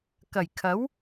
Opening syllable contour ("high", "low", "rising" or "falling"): low